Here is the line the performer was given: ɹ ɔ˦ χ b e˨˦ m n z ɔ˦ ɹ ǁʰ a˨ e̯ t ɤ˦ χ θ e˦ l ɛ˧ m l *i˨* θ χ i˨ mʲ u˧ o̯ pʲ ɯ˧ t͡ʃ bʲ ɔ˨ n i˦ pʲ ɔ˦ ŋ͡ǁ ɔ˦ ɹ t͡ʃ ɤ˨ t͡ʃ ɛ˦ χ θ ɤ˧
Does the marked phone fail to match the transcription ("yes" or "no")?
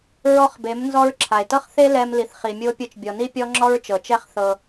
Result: no